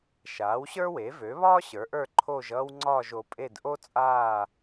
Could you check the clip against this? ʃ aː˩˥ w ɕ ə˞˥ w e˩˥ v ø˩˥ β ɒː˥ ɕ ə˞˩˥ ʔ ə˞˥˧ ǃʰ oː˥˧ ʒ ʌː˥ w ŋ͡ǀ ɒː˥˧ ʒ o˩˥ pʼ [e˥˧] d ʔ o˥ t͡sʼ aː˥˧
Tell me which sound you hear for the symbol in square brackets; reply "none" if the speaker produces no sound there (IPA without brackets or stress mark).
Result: e˥˧